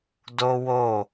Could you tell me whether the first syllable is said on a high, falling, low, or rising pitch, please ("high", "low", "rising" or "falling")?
high